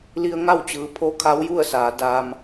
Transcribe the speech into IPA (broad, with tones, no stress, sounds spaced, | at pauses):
l i˧ ə̯ ŋ a˥˨ w t͡ɕ ɯː˩˧ pʰ o˧˥ kʰ a˧˥ w j u˥˨ ə̯ s aː˩˧ d aː˧ m